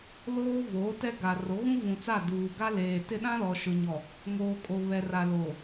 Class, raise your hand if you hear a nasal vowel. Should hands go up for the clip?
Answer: yes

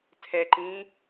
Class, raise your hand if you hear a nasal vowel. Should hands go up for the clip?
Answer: yes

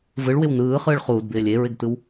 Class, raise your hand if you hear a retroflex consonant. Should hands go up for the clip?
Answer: yes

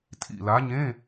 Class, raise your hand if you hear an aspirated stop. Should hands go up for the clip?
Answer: yes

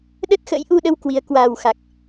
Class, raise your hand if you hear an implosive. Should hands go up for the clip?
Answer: yes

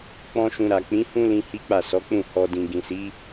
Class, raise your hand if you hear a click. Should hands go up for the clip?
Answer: no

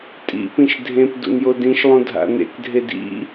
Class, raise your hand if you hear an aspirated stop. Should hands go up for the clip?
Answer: no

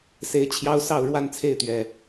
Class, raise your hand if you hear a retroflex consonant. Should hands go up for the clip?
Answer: yes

